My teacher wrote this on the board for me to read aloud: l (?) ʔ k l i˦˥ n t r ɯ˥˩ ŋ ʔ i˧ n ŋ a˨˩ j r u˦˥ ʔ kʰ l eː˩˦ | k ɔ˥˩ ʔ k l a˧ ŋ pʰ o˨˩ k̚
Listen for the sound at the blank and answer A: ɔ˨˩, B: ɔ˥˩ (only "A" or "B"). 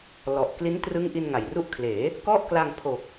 A